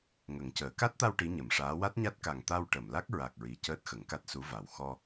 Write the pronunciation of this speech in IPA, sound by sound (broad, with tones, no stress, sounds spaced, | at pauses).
ŋ ə˨˩˦ ŋ c əː˨˩˦ k a˦˥ t̚ t̪ a˧ w ʈ i˧˥ ɲ ə˨˩˨ m ʂ aː˧˥ w a˦˥ t̚ ɲ a˦˥ t̚ k a˨˩ ŋ t̪ a˧ w ʈ ə˨˩˨ m l a˦˥ k̚ ɹ a˨˩ k̚ ɹ i˨˩˨ c əː˦˥ t̚ x ə˨˩˦ ŋ k a˦˥ t̚ s u˧˥ v a˨˩ w x ɔ˧